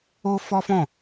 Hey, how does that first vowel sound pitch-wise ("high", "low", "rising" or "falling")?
high